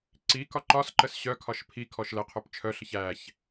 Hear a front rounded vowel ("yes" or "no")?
yes